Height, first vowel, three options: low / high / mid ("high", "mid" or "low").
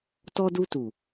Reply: mid